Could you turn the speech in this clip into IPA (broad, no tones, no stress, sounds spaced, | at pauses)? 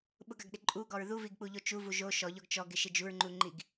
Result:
ɓ ʊ ɡ a ɡ ɗ ɪ ǃʼ u ɡ ɔ ɹ ð u v i ɡ k͡p u ʎ o t͡ʃ u v u ʒ o ʃ ɔ ʎ ɔ ɡ t͡ʃ ɔ ɡ ɪ ʃ ɪ d͡ʒ u ɹ ŋ͡ǃ u ŋ͡ǃ i ɡ